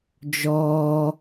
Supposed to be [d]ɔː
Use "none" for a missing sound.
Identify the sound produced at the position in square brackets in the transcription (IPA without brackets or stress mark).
d͡ʒ